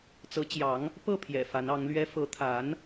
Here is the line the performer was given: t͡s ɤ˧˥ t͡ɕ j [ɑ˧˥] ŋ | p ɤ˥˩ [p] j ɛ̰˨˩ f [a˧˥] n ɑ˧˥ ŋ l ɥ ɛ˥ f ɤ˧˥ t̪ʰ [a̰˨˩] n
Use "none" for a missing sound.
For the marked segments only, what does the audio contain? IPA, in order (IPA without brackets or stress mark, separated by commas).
ɑ˧˥, pʰ, a˧˥, a˧˥